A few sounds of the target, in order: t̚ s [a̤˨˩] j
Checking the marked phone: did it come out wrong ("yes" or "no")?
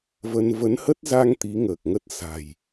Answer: no